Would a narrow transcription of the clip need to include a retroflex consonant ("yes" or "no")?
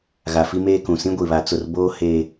no